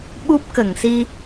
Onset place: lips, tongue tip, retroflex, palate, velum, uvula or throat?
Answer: lips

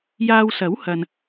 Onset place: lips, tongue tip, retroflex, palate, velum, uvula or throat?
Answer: palate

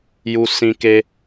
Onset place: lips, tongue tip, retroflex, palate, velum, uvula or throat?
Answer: palate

